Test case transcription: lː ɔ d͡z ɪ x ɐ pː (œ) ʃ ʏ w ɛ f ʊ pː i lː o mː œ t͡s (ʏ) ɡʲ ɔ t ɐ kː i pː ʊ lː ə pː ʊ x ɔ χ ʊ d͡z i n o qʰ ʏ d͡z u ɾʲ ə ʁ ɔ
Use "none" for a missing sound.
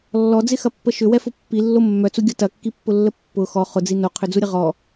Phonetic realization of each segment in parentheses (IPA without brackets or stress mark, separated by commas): ə, u